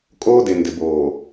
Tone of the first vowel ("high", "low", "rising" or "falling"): high